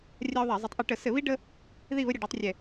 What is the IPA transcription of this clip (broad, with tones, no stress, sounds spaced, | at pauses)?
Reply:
rʲ a˦ o̯ ðˤ ɛ˧˩˧ zˤ ə˨˥ tˤ ʔ ɛ˧˩˧ ʈ ə˧˩˧ s ɘ˧˩˧ β i˦ ɖ ə˦ | ð i˦˨ β ə˦ ɾʲ ə˧˩˧ ɖ o˨˥ tˤ rʲ ɛ˦˨